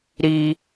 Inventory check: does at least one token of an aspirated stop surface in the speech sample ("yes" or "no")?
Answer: no